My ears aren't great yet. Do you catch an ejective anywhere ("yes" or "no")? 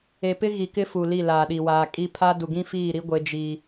yes